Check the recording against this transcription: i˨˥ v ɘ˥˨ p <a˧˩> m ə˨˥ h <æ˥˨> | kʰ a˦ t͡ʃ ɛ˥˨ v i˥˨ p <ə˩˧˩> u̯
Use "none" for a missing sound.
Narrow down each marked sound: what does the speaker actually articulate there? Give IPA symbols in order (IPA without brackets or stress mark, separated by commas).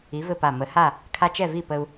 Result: a˧˩, a˥˨, ə˦